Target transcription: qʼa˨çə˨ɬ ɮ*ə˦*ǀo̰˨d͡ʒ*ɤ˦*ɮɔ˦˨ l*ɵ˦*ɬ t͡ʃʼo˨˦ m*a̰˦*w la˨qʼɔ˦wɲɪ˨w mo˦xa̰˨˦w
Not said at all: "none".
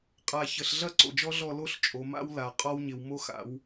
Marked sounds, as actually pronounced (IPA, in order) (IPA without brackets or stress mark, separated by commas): ɐ˦, ɔ˦, o˦, a̰˦